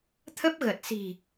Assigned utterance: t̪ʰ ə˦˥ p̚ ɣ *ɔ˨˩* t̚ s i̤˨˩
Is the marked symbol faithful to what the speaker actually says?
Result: no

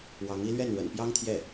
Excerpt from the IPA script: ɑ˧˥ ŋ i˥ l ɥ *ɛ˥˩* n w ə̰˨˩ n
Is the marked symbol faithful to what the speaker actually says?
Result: yes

